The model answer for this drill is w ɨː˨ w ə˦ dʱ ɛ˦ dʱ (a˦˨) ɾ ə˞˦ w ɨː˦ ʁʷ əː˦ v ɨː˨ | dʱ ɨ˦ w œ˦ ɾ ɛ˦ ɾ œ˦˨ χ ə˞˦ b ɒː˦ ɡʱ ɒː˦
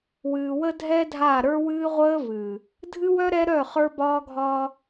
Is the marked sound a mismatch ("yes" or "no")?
no